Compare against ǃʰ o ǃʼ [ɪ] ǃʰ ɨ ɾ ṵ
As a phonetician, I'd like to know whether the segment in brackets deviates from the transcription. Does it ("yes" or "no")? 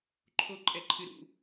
yes